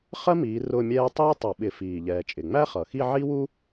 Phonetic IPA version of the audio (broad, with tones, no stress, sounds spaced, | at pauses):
χ ɜ˥ m iː˨˦ r ʊː˥˧ mʲ ɛː˥ tˤ iː˥ tˤ ʌ˧˩˧ ɓ ɪ˧˩˧ f iː˨˩ ʎ ɛː˨˩ t͡ʃʼ ɪ˨˩ ŋ͡m æ˥ χ ʌ˨˩ x i˥˧ ʕ i˥ w u˥